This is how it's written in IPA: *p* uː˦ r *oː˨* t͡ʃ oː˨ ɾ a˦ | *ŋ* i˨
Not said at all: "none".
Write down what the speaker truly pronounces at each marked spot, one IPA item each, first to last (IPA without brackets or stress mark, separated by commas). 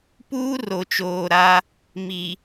p, o˨, m